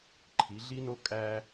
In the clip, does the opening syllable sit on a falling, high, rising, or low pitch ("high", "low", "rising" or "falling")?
rising